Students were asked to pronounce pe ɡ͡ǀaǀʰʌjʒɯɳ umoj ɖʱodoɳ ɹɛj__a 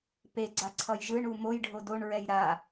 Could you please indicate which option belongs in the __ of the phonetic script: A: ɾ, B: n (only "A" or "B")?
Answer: A